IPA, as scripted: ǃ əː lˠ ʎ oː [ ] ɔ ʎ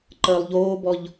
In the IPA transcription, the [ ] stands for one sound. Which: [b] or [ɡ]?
b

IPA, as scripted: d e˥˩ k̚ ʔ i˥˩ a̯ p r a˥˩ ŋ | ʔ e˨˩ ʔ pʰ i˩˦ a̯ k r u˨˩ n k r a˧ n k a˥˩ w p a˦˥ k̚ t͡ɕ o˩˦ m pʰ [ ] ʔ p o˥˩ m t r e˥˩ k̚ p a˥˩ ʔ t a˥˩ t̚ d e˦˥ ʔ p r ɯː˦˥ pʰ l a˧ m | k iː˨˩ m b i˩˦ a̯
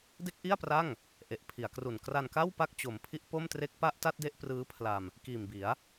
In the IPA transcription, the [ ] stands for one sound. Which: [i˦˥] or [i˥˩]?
i˦˥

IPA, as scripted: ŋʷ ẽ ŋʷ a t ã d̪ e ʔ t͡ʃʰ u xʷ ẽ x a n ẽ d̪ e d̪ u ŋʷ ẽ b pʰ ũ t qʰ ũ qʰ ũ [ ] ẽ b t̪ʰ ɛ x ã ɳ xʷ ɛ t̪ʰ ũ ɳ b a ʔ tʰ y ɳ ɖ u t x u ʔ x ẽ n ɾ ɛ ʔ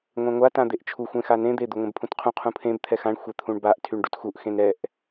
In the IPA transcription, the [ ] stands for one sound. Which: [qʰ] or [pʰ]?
pʰ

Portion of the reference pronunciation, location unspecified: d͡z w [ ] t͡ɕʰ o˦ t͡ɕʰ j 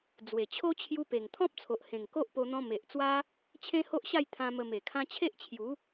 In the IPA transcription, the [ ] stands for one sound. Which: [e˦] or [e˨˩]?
e˨˩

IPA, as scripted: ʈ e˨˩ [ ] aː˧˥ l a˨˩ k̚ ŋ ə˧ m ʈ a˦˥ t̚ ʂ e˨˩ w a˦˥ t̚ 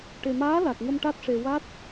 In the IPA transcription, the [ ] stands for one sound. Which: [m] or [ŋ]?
m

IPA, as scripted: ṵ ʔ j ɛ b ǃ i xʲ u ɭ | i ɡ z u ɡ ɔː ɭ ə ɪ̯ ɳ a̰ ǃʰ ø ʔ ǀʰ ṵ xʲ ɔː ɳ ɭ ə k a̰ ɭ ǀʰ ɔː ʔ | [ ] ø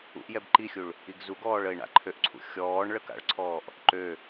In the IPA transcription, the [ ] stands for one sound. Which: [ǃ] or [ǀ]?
ǃ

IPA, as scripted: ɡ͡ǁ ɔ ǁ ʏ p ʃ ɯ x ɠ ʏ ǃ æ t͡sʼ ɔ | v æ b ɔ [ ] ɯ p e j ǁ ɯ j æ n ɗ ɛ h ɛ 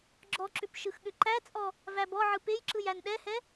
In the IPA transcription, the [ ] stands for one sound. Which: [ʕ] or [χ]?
ʕ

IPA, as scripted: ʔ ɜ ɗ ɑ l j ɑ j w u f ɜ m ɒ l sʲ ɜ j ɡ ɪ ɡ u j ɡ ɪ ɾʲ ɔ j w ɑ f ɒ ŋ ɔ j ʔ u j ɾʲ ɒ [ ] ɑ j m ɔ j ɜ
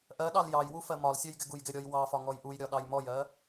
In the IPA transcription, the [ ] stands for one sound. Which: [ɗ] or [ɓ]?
ɗ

